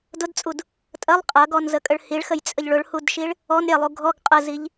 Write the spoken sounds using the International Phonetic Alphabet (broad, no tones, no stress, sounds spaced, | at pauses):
d ʊ d t͡sʼ u d | tʼ ɐ lˠ qʼ ɐ ɡ ɔ n z ə kʼ ə ɭ h i ɭ x ə j t͡sʼ ə ʎ ɭ ʊ ɭ h u d ʃ i ɭ | ɔ n ɾʲ ɐ lˠ u ɡʱ ɔ ɡ qʼ ə z i ʎ